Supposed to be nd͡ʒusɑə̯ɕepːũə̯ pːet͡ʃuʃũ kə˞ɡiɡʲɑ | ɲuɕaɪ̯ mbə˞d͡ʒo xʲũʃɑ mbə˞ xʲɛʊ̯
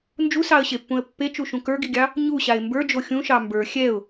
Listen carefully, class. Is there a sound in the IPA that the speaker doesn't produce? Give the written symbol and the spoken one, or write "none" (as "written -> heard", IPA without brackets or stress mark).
none